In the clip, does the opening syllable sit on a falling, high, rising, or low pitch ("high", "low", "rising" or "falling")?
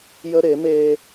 high